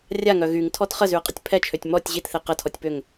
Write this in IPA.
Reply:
rʲ a ŋ œ ɣ y ŋ tʰ ɔ t χ ə z y ɐ̯ qʼ ə tʲ pʰ ɛ t͡ʃʰ ø tʲ m ɔ tʲ ʑ i t θ e q ə tʰ ɔ tʲ p ø ŋ

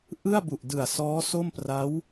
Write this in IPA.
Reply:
ʔ ɯ˥˩ a̯ b u˨˩ ʔ d ɯ˨˩ a̯ s ɔː˦˥ s o˥˩ m p r a˦˥ w

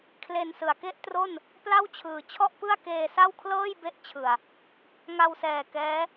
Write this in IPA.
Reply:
kʰ l e˧ n s ɯ˨˩ a̯ k e˥˩ ʔ t r o˥˩ n | p l a˥˩ w t͡ɕʰ ɯː˨˩ t͡ɕʰ ɔ˥˩ ʔ p ɯ˥˩ a̯ k eː˧ s a˥˩ w kʰ l ɤː˥˩ j b e˦˥ ʔ t͡ɕʰ ɯ˨˩ a̯ | ŋ a˧ w s ɛː˨˩ k ɛː˦˥

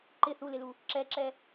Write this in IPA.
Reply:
ǃ ɪ θ u l ɪ l u | ǁ ɛ ǁ ɛ

